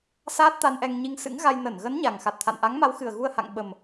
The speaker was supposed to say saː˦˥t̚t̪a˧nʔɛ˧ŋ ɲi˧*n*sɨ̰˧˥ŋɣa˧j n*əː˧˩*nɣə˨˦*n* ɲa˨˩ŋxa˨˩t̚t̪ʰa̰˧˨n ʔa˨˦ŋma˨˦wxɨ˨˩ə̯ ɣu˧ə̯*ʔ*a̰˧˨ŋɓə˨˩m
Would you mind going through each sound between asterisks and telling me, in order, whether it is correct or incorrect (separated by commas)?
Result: incorrect, incorrect, correct, incorrect